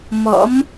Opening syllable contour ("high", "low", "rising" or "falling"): rising